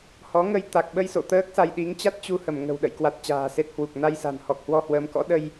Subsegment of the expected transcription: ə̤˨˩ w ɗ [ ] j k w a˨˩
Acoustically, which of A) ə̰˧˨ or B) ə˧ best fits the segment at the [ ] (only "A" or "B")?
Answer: A